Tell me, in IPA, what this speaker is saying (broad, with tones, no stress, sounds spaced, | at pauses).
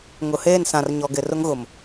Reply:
ŋ ʊ˨ h eː˦˨ n s ã˨ r ɲ ɔ˨ ɡ ɪ˨ r ʊ˦ ŋ ɣ ʊ˨ m